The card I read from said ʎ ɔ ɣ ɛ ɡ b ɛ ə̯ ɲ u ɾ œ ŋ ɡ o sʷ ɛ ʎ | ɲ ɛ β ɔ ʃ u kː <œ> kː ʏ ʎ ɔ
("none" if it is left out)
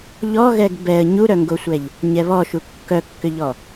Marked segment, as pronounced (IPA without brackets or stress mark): œ